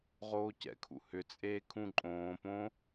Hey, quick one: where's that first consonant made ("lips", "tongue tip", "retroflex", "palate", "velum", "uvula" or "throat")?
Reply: uvula